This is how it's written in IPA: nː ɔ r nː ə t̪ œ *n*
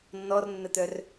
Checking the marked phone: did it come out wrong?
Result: yes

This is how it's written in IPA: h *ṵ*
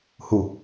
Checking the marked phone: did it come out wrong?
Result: yes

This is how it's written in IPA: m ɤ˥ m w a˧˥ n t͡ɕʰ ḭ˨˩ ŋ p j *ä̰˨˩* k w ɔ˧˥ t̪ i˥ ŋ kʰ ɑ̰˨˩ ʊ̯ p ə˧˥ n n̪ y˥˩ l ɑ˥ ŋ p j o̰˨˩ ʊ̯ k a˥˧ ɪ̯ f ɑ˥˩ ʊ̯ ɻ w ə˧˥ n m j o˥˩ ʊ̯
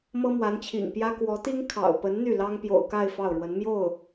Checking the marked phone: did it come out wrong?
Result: yes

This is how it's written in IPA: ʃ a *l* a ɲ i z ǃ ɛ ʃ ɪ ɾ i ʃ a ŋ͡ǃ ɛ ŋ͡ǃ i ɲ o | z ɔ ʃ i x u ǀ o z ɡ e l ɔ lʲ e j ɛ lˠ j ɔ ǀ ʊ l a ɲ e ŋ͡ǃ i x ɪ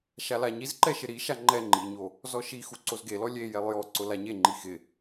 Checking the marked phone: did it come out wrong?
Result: no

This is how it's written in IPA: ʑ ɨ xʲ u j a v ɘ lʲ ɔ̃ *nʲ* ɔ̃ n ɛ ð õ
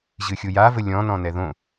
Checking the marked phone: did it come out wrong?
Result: yes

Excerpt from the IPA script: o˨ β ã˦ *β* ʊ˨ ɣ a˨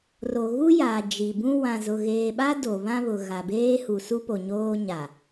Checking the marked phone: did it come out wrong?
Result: no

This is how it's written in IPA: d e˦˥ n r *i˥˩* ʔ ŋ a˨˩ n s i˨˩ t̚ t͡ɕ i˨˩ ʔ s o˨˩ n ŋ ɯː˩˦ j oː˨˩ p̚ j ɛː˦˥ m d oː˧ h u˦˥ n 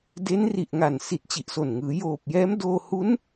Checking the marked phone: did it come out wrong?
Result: yes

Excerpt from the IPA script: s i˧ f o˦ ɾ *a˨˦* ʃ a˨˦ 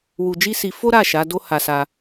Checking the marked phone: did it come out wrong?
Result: yes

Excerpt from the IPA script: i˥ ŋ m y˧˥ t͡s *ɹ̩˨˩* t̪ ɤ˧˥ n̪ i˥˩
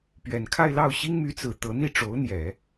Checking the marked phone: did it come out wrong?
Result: no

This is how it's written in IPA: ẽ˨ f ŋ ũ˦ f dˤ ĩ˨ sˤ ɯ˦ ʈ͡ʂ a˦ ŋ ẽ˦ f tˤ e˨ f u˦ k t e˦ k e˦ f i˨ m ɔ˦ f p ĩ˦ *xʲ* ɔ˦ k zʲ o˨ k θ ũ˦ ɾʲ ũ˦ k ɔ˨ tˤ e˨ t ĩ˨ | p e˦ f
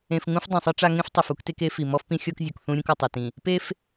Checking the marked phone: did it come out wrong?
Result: no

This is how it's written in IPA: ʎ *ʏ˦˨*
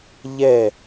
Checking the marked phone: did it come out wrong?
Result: yes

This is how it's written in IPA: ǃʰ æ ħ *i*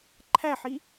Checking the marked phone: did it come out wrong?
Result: no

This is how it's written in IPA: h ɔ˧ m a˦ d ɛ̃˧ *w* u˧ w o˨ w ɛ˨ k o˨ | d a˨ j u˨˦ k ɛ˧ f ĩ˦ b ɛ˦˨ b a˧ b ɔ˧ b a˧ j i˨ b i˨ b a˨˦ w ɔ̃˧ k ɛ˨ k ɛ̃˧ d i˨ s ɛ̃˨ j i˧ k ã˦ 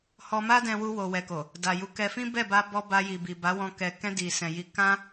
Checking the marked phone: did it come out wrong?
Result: no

